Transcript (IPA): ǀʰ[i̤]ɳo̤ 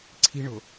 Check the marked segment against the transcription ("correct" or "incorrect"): correct